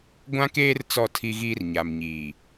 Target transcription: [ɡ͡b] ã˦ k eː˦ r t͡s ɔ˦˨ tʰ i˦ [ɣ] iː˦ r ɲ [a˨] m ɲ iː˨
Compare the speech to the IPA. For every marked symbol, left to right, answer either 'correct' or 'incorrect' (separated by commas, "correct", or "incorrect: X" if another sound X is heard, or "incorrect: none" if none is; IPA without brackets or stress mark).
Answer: incorrect: ɡʷ, correct, correct